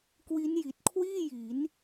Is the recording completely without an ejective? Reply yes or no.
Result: yes